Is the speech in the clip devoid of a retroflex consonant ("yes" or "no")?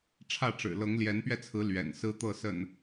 no